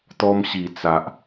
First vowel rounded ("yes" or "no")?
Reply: yes